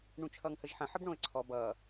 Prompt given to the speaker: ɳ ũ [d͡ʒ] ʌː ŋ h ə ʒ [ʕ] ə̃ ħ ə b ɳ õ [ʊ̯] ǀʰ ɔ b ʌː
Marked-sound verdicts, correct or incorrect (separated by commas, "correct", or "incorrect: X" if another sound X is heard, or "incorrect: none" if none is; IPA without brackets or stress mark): incorrect: t͡ʃʰ, incorrect: ħ, incorrect: ə̯